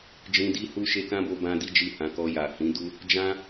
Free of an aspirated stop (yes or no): yes